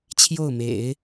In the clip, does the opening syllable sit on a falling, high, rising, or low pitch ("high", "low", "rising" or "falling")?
falling